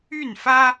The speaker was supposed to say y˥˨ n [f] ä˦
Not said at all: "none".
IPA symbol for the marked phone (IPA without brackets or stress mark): f